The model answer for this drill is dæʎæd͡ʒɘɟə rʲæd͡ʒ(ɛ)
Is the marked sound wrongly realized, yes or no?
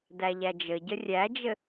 yes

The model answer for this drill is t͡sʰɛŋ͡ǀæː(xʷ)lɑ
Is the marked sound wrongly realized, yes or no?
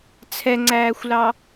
no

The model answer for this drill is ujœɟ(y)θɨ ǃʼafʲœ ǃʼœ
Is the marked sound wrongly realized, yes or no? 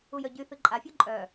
no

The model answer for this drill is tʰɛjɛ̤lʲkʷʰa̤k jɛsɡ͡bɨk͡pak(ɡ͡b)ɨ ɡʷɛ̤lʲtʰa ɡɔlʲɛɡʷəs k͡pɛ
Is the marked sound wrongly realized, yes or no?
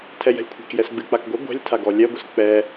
yes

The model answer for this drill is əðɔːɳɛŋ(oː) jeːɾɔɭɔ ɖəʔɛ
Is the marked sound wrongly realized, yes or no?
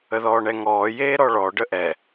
yes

